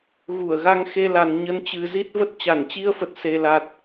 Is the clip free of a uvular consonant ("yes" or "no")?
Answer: yes